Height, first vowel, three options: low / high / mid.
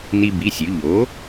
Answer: high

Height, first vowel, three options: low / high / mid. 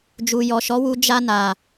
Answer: high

